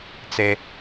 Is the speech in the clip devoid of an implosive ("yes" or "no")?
yes